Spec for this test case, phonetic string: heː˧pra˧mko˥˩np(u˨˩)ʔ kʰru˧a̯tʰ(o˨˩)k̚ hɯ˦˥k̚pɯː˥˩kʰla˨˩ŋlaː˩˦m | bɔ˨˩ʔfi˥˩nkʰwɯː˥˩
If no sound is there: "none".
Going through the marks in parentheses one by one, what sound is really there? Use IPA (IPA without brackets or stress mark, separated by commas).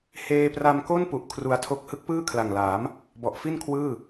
u˨˩, o˥˩